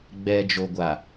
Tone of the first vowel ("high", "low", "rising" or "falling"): low